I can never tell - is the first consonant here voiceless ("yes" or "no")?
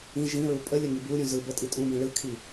no